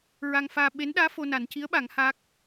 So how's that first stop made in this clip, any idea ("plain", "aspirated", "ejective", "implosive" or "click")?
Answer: implosive